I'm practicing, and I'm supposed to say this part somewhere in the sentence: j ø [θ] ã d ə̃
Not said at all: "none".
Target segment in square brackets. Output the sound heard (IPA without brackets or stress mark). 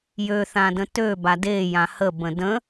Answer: θ